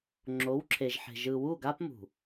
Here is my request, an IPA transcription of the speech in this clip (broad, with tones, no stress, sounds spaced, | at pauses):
ŋ͡ǁ o˨˦ w ǁʰ e˨ ʒ ħ e̤˨ ʒ ɯ˨ w u˦˨ ɡ a˦ p m ṳ˨